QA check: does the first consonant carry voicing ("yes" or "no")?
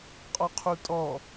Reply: no